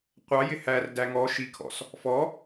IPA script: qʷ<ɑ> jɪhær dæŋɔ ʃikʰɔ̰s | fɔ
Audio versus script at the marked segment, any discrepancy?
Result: no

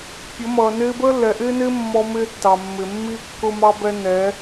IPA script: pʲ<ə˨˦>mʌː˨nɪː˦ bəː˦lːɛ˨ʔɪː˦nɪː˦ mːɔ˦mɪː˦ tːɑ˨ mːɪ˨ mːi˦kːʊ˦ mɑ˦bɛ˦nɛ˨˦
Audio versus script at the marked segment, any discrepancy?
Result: no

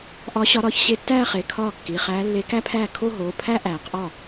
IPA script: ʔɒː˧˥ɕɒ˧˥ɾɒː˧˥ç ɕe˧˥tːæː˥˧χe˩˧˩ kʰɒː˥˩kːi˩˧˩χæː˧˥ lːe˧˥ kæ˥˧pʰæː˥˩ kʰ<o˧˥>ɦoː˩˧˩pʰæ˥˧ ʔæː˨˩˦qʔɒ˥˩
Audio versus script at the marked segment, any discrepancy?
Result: yes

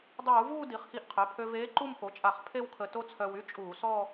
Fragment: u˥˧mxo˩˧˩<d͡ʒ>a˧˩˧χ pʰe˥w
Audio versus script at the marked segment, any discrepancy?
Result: yes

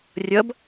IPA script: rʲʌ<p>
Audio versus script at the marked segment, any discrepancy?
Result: yes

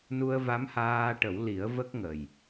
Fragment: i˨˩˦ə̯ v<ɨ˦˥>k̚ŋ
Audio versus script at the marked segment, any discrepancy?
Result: yes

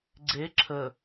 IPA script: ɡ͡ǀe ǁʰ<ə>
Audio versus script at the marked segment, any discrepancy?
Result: no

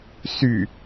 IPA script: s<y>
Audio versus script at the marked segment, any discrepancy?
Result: no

